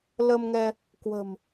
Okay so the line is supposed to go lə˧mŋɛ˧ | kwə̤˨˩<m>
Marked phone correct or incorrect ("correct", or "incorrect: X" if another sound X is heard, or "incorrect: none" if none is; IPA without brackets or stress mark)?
correct